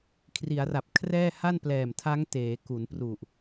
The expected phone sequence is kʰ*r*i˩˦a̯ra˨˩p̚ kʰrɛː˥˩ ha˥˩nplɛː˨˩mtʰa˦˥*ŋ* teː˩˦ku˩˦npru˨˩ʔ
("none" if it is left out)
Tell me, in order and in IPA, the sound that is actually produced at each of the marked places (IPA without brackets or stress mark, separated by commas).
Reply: r, ŋ